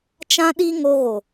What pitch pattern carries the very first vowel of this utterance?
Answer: high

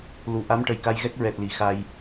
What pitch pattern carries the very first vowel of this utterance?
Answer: low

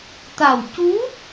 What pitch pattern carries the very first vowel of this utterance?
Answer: low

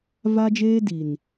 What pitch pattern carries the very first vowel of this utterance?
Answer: high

